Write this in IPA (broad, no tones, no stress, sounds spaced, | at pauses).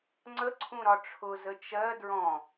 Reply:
ŋ͡ǀ ə ǀʰ ũ ɾ ɒ ʈ͡ʂʰ ʊ z ə t͡ʃ ɜ d ɹ ɔ̃